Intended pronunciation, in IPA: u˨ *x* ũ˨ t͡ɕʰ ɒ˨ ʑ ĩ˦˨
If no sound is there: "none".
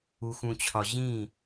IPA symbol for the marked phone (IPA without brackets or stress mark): x